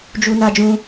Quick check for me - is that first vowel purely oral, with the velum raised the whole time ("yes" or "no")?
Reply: yes